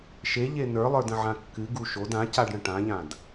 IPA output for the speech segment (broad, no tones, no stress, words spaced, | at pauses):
ʃeʎe nə˞lˠə˞də̃ʕã kːɨɡu ʃod ãcaɖɽə̃ ʈãʎãd